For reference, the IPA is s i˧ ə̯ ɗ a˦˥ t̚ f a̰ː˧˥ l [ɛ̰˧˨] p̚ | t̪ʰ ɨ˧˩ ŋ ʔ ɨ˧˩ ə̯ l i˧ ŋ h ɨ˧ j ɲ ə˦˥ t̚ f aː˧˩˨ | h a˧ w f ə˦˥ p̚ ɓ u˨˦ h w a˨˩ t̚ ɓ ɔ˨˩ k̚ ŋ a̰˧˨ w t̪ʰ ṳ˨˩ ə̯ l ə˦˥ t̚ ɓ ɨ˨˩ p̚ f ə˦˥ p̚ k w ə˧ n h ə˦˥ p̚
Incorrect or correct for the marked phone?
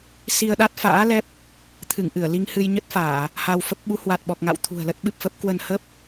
incorrect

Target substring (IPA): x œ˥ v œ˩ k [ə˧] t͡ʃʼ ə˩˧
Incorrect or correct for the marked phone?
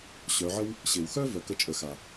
correct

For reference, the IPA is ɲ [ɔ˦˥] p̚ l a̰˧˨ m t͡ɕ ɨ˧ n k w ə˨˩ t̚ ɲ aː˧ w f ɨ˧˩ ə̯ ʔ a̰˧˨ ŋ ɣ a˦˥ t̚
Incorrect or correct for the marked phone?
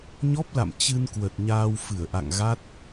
correct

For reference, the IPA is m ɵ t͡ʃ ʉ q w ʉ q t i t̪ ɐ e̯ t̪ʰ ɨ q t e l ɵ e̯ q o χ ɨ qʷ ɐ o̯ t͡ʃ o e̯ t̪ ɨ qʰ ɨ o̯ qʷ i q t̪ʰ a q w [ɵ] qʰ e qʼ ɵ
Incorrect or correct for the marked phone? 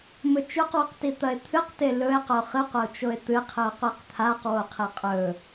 incorrect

